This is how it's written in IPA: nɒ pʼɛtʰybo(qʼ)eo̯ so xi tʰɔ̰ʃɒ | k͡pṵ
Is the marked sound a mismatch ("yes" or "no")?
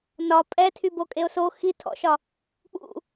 yes